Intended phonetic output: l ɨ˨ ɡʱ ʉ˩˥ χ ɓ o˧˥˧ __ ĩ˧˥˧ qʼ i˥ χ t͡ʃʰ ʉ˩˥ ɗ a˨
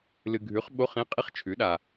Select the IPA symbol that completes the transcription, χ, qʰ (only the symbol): χ